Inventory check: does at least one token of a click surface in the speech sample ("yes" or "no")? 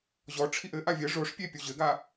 no